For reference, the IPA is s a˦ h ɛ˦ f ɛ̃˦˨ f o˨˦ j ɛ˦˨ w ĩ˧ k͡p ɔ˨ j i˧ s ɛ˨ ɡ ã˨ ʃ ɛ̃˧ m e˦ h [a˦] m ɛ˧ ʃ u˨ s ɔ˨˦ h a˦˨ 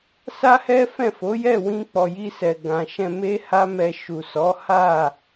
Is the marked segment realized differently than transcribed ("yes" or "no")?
no